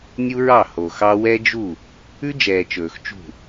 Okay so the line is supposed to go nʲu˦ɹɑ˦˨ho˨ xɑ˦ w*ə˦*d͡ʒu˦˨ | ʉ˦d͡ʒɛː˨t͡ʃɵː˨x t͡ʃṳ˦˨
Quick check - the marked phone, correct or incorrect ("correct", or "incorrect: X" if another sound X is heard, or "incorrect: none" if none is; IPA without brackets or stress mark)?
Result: incorrect: ɛ˦